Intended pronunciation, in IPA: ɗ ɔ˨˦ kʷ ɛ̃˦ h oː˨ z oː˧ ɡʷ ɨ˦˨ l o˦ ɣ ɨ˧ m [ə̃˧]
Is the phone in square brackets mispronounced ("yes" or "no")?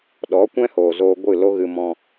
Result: yes